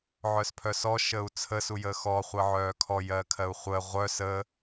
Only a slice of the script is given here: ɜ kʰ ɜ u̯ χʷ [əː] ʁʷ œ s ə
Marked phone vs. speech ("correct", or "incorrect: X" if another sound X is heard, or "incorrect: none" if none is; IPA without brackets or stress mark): incorrect: ə